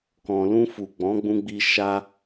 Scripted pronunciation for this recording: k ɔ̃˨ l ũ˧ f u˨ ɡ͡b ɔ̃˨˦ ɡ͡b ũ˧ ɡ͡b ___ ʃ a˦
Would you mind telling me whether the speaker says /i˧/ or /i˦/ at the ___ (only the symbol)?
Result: i˧